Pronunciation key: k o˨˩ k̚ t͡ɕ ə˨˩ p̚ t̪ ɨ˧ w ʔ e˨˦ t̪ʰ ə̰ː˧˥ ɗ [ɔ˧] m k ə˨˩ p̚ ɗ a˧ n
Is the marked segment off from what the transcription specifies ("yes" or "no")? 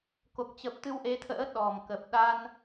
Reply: yes